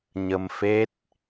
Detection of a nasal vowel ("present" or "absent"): absent